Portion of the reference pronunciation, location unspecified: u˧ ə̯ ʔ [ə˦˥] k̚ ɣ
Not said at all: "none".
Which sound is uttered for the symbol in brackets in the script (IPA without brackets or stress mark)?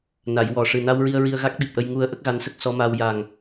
ə˦˥